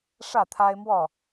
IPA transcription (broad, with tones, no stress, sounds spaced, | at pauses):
ʂ ä˥˨ t̪ʰ a˦ ɪ̯ m w ɔ˥˨